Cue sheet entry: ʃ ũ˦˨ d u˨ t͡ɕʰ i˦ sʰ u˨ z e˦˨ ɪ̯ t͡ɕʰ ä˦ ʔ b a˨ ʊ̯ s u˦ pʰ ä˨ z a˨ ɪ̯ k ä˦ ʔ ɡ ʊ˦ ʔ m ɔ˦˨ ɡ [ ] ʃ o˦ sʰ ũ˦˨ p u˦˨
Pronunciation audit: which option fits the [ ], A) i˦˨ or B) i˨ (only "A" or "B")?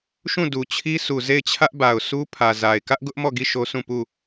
A